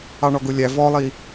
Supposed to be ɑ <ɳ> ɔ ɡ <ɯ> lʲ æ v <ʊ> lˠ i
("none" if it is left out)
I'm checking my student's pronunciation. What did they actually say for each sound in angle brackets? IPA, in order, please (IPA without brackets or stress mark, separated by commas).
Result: ɳ, ʊ, ɔ